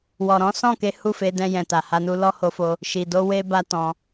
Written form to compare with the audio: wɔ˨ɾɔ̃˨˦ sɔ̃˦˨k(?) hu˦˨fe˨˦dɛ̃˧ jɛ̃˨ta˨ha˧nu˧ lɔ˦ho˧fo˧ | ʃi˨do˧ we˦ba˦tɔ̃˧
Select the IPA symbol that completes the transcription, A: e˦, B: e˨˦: B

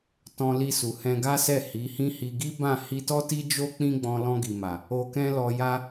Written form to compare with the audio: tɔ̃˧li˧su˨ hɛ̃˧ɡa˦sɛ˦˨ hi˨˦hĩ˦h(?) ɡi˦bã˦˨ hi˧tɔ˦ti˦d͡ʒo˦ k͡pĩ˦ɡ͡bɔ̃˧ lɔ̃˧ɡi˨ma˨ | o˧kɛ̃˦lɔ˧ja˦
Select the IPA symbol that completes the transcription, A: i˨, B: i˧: B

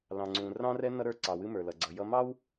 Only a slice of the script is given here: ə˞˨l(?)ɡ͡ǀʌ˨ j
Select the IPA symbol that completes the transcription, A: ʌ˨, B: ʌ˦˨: A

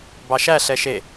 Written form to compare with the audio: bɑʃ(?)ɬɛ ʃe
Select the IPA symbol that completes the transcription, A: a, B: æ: B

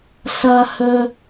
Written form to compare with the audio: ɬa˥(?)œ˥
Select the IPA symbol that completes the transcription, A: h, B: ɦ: A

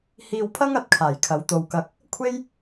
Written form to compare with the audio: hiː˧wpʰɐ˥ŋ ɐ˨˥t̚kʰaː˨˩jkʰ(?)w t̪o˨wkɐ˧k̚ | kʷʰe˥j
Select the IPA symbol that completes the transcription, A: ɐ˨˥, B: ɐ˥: A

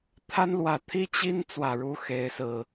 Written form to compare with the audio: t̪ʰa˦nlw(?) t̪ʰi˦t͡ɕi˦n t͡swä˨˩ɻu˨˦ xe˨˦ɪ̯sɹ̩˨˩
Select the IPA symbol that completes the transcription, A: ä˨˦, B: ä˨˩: B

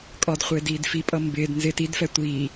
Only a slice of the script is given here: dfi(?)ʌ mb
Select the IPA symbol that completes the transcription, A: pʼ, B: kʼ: A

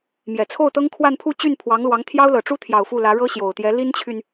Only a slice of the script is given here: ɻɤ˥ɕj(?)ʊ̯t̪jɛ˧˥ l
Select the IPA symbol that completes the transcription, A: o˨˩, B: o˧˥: A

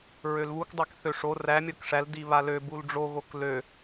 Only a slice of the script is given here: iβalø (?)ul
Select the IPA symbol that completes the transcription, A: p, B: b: B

